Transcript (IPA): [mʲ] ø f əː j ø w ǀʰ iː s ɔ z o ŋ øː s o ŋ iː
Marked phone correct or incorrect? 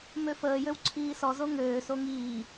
incorrect